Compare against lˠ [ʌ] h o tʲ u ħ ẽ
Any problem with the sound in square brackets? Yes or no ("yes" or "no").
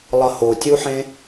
no